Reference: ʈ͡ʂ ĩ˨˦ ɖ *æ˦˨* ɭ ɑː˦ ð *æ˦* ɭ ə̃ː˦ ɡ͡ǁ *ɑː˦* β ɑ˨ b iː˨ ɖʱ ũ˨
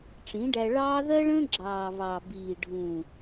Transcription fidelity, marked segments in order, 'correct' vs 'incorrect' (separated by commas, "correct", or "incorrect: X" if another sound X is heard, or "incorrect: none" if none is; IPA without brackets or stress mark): incorrect: æ˧, incorrect: ɜ˦, incorrect: ɑː˨